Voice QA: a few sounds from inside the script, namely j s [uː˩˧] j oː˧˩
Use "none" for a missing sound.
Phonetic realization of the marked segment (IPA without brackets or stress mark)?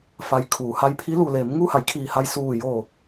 uː˧˩